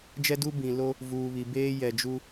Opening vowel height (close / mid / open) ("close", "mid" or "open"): mid